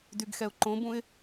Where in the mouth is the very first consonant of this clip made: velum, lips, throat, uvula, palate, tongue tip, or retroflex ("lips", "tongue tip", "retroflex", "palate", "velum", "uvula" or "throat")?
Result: tongue tip